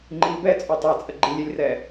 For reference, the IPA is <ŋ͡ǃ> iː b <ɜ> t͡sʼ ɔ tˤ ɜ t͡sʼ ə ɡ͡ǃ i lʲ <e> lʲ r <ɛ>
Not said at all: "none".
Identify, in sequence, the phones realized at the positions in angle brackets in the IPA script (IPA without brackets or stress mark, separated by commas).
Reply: ŋ͡ǃ, ɛ, e, ɛ